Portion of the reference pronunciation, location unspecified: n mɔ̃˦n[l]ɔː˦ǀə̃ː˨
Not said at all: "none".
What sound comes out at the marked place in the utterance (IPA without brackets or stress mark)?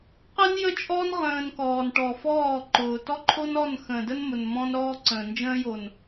ɾ